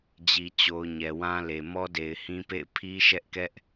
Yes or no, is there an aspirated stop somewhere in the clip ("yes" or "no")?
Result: yes